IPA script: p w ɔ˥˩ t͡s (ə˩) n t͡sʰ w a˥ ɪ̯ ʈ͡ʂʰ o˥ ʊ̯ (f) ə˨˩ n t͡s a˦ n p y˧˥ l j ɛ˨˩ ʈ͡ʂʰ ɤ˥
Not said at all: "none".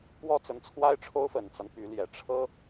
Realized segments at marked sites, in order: ə˧˥, f

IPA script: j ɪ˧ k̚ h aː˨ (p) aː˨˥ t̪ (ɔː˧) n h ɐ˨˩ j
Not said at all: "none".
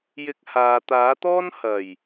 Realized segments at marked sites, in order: t̪, ɔː˥

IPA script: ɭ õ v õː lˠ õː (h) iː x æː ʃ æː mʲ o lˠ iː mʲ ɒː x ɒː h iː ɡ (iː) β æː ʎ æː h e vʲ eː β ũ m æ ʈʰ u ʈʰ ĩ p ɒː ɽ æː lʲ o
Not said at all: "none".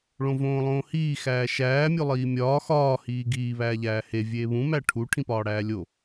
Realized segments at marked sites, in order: h, iː

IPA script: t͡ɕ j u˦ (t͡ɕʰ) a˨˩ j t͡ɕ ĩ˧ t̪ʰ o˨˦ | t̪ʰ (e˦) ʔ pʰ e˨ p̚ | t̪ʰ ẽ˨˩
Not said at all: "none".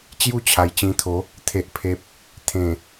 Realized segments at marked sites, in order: t͡ɕʰ, e˨

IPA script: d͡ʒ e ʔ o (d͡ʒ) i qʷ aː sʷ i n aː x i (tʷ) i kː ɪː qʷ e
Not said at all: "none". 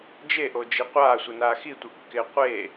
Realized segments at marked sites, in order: d͡ʒ, tʷ

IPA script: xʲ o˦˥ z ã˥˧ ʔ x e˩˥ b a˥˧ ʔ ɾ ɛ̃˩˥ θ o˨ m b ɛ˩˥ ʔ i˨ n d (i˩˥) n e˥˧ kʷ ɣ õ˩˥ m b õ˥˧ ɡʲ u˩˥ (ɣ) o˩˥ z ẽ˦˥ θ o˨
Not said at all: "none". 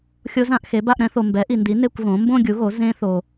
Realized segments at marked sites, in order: i˩˥, ɣ

